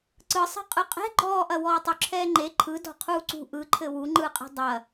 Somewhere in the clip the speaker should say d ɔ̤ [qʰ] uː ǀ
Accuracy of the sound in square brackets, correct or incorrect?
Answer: correct